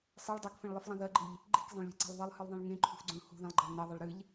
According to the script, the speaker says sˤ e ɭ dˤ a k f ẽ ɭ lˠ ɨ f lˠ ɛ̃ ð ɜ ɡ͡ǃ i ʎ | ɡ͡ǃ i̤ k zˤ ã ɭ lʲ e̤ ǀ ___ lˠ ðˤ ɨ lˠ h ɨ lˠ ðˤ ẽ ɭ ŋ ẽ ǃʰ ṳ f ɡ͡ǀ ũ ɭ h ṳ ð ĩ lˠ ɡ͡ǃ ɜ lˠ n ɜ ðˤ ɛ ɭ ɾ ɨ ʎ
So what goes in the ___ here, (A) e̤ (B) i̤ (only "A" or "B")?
A